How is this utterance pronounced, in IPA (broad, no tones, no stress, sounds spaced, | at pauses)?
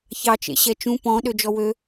ç ɑ t͡ʃ ḛ ɕ ɛ t͡ʃ ũ p ɔ̃ ɗ ø d͡ʒ ɔ w ø